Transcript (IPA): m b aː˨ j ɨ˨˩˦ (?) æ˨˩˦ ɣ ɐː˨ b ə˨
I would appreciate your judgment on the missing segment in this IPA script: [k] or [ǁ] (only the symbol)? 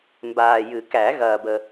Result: k